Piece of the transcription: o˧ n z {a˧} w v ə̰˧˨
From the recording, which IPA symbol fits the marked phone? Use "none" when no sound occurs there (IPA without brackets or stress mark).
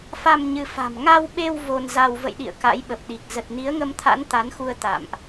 a˧